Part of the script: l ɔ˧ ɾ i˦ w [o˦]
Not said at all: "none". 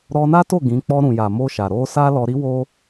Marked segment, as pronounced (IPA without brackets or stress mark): o˦